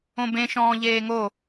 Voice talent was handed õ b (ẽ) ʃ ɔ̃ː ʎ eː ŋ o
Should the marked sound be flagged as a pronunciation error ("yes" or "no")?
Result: no